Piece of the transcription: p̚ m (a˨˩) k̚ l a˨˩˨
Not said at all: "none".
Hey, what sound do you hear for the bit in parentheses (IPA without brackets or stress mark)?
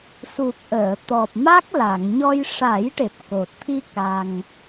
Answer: a˦˥